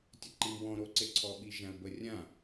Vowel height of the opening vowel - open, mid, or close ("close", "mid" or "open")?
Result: mid